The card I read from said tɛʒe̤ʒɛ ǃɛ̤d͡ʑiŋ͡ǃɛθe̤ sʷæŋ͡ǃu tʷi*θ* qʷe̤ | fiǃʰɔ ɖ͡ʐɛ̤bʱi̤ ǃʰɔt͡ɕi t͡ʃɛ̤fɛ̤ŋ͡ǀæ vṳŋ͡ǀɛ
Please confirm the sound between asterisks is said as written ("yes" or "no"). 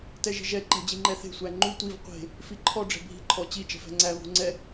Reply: no